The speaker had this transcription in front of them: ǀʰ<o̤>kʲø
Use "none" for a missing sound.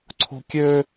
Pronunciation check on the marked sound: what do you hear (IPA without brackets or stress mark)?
o̤